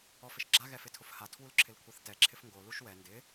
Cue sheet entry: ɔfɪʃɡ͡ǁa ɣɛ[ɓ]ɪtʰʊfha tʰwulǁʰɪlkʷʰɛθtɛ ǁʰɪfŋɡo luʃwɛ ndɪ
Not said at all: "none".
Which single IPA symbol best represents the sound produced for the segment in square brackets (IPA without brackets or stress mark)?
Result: f